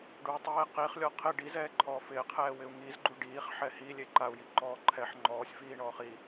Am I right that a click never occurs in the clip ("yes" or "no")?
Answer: no